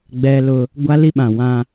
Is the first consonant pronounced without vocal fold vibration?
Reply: no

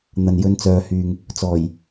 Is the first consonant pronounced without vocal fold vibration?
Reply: no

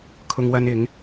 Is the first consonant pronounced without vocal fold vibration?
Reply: yes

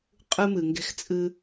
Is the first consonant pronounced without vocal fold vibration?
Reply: yes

